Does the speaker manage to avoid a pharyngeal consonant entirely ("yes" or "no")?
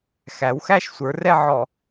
no